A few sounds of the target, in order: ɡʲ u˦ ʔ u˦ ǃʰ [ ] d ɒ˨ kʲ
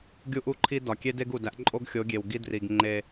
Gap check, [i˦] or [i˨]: i˦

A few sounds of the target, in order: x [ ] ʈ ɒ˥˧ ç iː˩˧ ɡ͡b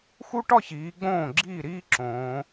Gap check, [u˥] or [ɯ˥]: u˥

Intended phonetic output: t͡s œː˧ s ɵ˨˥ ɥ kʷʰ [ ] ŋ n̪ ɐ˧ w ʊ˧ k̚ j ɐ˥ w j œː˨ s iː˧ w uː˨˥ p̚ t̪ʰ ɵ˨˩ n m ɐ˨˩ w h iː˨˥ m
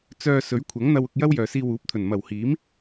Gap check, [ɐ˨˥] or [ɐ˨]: ɐ˨˥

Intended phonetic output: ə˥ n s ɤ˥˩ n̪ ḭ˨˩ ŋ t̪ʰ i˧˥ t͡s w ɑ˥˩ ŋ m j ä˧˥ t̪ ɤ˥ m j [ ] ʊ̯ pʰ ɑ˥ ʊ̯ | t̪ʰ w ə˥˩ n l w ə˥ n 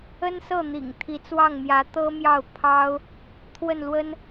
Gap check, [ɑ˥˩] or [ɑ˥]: ɑ˥˩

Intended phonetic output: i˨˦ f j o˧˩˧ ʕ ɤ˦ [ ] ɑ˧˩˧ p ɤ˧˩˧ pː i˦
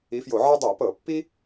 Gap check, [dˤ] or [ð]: dˤ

